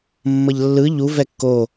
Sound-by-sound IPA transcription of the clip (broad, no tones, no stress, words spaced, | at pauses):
mːʌʎlːɯ ʎu vɛkːo